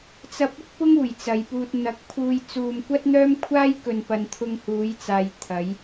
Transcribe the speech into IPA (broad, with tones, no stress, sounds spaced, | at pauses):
t͡s ɐ˧ p̚ ɪ˥ k̚ p ʊ˥ ŋ uː˨˩ j t͡s ɐ˨ j p uː˧ t̚ n̪ ɐ˨˥ k̚ pʰ uː˧ j t͡s uː˧ m kʷ ɐ˥ t̚ n̪ œː˥ m kʷʰ aː˥ j k ɵ˧ n p ɐ˧ n t̪ʰ ʊ˧ ŋ h uː˨˧ j t͡s aː˨ j t̪ʰ ɐ˨˧ j